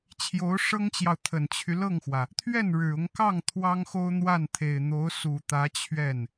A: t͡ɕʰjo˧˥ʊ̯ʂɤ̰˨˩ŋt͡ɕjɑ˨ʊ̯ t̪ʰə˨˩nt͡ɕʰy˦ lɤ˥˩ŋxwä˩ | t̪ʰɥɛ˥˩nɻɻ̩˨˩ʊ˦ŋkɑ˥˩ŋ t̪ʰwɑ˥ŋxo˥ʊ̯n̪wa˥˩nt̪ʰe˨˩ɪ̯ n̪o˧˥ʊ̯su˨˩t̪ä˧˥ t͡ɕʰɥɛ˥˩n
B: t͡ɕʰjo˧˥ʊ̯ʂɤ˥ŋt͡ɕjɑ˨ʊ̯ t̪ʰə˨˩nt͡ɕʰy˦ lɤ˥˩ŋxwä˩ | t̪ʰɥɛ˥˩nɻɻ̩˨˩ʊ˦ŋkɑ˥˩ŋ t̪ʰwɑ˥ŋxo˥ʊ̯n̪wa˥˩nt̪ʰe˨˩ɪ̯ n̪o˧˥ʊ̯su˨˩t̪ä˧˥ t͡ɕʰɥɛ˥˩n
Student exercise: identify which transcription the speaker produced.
B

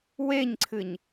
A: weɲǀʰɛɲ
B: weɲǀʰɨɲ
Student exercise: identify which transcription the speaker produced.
B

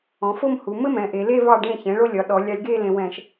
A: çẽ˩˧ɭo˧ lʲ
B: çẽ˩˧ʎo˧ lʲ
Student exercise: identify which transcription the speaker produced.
A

